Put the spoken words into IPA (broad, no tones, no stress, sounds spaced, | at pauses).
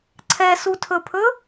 ǀʰ ɛ s u tʰ ɵ pʰ ɵ